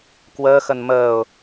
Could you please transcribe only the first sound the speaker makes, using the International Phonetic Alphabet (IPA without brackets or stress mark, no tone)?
k